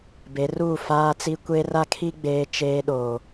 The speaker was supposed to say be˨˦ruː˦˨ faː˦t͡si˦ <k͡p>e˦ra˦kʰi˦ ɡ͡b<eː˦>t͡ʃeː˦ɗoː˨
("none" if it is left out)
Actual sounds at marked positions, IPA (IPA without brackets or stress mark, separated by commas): kʷ, eː˦